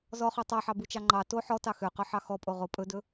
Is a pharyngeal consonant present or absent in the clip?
present